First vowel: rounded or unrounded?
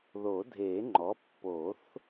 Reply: rounded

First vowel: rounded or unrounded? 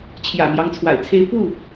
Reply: unrounded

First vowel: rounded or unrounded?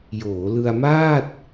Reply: rounded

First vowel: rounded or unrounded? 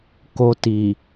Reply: rounded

